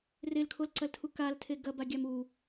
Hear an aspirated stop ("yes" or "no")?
yes